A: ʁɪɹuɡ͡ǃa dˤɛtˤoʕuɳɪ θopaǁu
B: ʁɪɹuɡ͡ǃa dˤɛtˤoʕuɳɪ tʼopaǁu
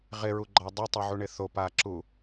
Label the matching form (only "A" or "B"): A